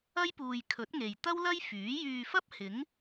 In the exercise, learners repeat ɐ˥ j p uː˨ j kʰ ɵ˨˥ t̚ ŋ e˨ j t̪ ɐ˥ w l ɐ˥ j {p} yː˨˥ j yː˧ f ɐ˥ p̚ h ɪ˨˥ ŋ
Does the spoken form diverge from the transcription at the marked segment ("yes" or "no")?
yes